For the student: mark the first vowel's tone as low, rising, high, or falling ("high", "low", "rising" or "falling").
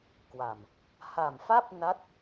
low